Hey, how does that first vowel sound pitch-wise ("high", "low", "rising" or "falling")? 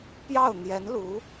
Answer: falling